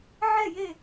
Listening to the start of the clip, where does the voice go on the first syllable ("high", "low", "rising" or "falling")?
falling